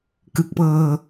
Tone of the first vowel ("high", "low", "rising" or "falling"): low